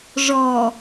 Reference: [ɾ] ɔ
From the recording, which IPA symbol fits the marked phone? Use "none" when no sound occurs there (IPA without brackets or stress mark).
ʐ